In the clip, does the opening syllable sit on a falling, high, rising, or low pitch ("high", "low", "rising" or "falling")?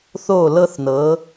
falling